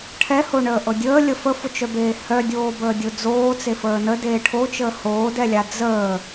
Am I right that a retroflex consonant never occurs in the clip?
no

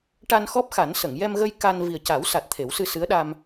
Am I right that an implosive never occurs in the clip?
no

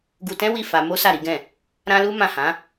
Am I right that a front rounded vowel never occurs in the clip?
yes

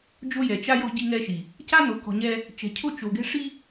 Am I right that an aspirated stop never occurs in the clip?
no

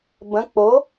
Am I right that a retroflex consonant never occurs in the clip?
yes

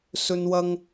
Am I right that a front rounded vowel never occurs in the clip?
yes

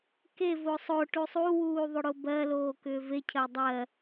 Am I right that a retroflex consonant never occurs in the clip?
no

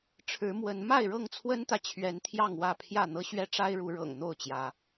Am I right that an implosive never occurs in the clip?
yes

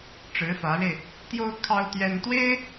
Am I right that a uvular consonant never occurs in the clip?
yes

